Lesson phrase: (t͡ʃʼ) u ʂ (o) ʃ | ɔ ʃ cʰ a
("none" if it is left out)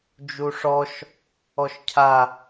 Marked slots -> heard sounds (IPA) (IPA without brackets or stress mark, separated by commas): d͡ʒ, ɔ